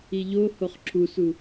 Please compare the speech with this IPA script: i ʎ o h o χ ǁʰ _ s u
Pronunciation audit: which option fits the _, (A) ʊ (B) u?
B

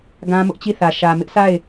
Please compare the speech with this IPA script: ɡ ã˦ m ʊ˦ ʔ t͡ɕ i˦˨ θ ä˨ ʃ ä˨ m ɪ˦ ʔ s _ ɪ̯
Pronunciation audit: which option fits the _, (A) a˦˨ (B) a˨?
A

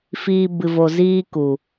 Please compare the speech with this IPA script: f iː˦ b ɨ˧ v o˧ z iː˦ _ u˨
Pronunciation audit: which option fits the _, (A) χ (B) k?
B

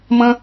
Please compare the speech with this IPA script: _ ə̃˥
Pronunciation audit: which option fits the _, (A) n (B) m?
B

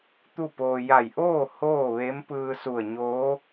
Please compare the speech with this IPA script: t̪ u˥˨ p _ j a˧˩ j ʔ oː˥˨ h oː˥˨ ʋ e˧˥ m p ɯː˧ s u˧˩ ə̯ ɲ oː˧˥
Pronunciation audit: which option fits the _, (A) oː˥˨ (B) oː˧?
B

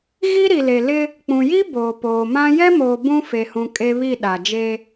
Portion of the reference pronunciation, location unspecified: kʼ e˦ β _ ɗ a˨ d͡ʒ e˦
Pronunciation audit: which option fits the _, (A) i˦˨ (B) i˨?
A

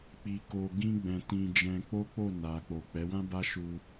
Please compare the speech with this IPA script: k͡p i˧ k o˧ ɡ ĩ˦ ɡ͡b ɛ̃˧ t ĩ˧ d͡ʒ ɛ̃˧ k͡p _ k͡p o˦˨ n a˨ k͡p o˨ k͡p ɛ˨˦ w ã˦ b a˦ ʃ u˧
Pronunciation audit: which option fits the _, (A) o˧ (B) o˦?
B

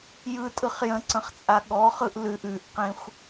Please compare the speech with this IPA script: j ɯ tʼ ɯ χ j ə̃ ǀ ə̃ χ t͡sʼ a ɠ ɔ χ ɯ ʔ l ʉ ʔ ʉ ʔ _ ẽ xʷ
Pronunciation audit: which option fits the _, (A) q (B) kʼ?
A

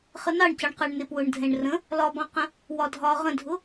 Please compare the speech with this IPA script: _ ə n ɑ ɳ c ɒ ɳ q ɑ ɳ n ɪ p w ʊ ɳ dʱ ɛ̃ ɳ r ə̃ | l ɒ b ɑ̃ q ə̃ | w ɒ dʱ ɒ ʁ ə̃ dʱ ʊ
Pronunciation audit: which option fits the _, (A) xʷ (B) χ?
B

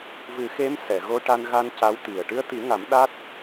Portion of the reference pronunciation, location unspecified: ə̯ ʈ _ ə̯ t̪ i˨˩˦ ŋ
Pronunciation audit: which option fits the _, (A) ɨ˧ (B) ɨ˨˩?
A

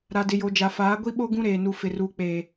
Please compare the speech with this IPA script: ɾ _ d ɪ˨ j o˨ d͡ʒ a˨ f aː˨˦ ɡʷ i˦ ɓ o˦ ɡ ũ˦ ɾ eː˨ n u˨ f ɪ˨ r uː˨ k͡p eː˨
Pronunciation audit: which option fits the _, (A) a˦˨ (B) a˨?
B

